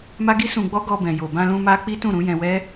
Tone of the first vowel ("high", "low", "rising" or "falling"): high